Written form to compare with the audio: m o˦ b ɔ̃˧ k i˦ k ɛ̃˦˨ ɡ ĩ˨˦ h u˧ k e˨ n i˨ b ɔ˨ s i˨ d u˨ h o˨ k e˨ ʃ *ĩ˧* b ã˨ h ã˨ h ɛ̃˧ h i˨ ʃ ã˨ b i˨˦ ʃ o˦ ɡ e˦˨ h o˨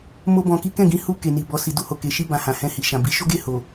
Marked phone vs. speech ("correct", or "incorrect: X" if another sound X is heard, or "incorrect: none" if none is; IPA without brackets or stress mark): incorrect: i˧